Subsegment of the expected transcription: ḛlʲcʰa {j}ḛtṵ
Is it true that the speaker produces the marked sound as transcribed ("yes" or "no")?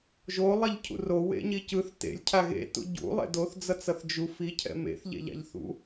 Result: no